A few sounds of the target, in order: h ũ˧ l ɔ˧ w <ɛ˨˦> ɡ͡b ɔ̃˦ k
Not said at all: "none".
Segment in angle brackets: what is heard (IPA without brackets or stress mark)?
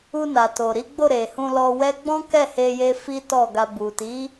ɛ˦